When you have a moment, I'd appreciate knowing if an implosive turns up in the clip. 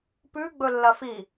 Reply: no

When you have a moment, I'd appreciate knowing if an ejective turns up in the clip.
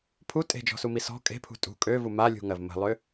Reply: yes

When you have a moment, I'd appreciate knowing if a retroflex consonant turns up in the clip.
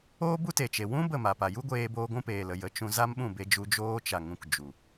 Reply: no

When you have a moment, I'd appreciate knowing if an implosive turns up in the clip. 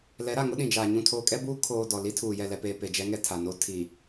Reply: yes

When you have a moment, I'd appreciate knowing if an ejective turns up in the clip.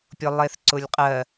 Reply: yes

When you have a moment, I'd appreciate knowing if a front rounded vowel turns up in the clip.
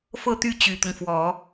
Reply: yes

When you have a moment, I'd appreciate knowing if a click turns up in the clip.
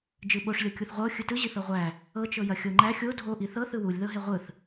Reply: yes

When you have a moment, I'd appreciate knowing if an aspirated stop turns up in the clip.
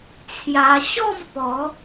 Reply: yes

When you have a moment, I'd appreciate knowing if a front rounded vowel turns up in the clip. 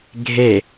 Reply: no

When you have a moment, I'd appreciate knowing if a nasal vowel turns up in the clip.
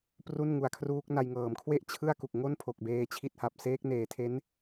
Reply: no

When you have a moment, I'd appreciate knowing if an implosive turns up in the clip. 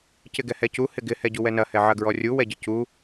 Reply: no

